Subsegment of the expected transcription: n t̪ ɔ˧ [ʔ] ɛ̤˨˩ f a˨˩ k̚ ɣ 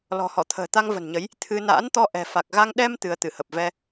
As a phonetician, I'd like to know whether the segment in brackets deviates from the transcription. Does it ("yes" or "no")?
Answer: no